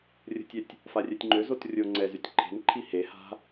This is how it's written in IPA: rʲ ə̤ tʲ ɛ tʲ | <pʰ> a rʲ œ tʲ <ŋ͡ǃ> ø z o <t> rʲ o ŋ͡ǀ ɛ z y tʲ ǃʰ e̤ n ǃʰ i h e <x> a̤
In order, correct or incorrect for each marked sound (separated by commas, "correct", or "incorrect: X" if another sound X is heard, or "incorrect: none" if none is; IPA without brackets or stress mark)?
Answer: incorrect: f, correct, correct, incorrect: h